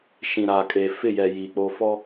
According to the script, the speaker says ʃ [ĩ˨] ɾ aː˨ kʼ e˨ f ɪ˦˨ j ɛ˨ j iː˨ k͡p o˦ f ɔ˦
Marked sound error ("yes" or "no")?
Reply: no